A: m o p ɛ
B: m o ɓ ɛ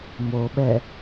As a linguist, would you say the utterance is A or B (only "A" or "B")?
B